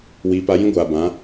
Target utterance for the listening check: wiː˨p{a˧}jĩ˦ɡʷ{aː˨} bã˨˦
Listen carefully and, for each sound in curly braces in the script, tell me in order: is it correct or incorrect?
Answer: correct, correct

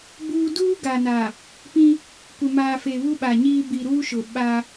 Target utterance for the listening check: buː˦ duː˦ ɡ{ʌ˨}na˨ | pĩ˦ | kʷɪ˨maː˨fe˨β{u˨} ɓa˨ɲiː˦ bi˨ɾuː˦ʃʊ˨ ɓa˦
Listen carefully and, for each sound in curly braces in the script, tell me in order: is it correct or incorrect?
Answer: incorrect, incorrect

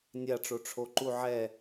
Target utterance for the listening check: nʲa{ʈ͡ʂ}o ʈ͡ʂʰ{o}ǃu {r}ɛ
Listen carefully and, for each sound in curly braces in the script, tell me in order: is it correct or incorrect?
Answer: correct, correct, incorrect

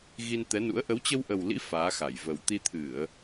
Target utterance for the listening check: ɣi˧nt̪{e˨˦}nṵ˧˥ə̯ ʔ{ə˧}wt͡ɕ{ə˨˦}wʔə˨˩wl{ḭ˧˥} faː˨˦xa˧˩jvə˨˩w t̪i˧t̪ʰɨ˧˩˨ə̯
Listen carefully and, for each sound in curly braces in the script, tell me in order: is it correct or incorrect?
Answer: incorrect, incorrect, incorrect, correct

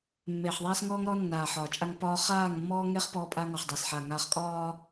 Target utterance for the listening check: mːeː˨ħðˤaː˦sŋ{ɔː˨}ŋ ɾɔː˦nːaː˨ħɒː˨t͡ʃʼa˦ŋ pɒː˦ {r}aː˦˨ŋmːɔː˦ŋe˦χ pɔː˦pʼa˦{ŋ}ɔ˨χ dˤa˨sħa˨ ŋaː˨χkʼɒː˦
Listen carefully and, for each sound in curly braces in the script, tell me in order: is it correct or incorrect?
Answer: incorrect, incorrect, correct

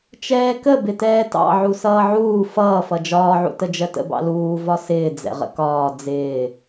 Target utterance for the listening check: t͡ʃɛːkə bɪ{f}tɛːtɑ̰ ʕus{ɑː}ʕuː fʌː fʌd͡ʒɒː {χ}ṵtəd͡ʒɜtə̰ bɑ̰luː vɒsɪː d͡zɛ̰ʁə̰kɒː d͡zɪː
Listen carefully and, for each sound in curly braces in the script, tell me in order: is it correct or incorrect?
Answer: incorrect, incorrect, incorrect

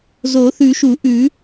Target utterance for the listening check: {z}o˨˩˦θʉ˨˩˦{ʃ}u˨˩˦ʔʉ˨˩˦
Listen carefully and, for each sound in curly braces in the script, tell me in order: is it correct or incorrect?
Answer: correct, correct

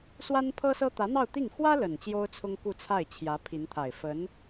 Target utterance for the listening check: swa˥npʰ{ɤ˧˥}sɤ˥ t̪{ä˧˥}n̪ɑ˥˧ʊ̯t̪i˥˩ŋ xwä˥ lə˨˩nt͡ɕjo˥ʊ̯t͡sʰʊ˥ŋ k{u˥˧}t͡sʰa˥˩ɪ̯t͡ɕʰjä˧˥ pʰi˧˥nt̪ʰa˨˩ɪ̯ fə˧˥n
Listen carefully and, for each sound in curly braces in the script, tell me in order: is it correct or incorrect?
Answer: incorrect, correct, correct

